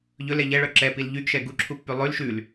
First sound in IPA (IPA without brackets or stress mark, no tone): ʎ